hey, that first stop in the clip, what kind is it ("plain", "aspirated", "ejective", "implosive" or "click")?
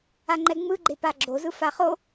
click